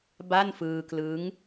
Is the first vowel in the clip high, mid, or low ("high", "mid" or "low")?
low